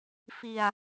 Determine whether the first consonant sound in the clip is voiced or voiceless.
voiceless